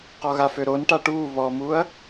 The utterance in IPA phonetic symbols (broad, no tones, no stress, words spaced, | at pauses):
qɔɣaføɾon ʈaʈuː βɔmuːɐ̯